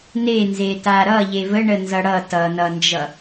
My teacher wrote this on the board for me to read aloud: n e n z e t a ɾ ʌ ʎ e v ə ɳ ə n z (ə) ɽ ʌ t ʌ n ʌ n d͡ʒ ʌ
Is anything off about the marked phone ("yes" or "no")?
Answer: yes